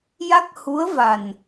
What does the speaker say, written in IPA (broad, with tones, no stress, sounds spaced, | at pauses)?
j a˦˥ k̚ h u˧˥ ə̯ v a˨˩ n